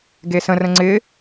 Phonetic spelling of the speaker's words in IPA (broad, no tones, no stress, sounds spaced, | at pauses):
ɡ e s ə̃ r ə̃ ŋ͡ǀ ɪ